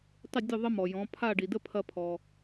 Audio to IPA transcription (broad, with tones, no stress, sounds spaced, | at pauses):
tˤ ɪ˥˩ dʲ ʊ˥˩ ðˤ ə˥ m ɔ˩ j ɔ̃˩˥ pʰ a˥˩ ɖ i˩ d ə˥ pʰ ɐ˧ pʰ ɔ˩